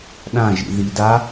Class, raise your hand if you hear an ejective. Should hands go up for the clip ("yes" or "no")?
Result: no